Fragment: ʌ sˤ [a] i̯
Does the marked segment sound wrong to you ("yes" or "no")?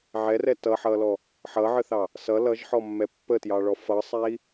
yes